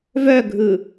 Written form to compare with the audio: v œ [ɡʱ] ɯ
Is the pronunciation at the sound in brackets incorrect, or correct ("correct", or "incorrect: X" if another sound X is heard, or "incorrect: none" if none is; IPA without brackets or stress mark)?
correct